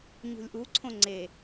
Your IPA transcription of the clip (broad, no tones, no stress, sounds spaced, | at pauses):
ɲ ṳ lʲ ʔ u ǀʰ õ ŋ͡ǀ e